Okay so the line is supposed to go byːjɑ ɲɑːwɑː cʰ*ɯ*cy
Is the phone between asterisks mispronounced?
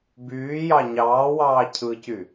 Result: no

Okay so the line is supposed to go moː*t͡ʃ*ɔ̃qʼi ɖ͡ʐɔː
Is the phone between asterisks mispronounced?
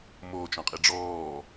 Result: no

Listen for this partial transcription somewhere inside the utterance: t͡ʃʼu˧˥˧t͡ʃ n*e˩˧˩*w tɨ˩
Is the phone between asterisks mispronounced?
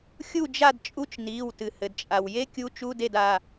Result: yes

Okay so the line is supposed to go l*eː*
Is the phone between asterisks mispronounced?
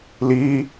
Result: yes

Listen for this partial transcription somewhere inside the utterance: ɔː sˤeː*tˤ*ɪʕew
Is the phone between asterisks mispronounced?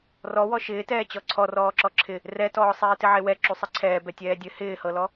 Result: yes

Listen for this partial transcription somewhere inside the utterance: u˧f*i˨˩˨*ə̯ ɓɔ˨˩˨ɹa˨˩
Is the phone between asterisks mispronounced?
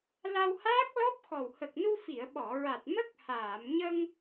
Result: no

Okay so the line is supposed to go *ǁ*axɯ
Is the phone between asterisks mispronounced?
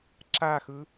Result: no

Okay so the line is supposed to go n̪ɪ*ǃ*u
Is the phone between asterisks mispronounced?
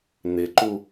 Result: no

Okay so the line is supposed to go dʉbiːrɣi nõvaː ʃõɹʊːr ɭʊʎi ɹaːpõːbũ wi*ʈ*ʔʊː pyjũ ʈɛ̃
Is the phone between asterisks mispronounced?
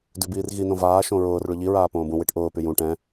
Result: no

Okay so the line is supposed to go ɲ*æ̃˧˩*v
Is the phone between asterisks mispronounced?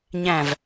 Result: no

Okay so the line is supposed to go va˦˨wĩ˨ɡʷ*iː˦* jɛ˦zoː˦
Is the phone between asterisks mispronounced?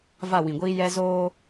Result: no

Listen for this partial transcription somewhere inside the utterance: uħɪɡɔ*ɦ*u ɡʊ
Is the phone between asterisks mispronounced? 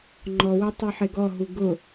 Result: no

